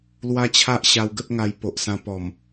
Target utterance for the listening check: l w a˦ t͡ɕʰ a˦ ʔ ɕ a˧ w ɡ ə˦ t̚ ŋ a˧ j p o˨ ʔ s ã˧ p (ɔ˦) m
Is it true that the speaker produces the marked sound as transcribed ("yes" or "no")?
no